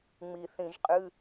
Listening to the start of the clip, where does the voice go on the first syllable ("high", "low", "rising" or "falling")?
low